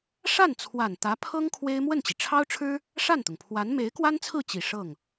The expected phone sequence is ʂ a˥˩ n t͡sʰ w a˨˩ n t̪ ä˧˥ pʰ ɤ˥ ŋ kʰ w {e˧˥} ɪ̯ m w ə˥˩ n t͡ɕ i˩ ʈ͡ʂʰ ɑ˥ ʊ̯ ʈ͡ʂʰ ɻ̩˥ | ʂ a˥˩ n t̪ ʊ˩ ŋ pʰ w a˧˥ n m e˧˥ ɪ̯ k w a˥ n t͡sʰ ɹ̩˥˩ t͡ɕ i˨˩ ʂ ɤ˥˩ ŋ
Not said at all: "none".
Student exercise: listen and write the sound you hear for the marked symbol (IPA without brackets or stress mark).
e˥